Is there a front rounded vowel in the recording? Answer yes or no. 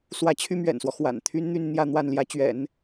yes